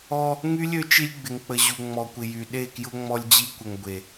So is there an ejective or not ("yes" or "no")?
no